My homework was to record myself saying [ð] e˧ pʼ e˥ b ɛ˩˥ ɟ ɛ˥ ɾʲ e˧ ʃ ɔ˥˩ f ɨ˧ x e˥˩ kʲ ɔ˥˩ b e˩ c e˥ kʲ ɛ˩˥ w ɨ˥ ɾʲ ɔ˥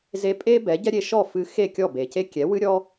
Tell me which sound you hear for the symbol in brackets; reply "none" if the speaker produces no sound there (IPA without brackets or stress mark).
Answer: z